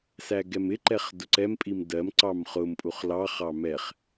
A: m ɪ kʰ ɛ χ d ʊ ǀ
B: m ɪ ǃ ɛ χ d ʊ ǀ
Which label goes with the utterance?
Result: B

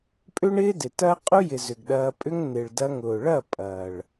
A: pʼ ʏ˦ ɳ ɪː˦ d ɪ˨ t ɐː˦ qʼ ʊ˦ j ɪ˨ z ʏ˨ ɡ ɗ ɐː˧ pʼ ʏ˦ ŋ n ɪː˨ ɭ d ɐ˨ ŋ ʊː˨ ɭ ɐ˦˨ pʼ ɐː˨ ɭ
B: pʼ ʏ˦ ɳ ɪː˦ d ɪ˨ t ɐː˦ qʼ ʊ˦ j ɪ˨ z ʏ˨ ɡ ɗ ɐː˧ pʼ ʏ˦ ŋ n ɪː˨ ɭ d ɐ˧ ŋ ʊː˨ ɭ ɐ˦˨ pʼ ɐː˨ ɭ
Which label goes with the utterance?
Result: B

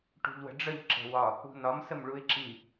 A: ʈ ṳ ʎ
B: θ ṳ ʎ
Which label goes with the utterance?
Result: A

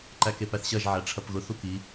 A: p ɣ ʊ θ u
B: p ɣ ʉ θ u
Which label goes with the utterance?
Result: A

